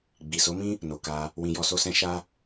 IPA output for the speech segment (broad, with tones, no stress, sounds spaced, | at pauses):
ɡ͡b i˨ s o˨˦ m ĩ˦ | n o˨ k a˧ | w ĩ˧ j ɔ˧ s o˦ s ɛ̃˦ ʃ a˦